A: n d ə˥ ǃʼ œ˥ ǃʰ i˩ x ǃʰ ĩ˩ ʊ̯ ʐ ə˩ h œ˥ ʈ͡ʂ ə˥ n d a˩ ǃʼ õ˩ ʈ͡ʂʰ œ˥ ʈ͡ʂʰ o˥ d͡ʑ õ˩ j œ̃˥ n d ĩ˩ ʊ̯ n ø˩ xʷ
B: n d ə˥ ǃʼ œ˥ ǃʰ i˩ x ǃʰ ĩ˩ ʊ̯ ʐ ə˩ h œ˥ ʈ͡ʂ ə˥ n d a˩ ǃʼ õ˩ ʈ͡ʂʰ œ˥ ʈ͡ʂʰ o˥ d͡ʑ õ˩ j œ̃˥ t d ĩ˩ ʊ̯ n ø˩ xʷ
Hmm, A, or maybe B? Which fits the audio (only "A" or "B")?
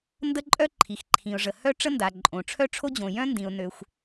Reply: A